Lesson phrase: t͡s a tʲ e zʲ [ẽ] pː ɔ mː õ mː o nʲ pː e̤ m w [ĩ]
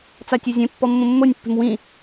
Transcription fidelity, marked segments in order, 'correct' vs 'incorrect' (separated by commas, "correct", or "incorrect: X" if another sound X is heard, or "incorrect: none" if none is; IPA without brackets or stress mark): correct, correct